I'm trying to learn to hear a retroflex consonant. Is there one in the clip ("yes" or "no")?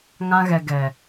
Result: no